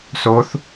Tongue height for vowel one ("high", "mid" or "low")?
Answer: mid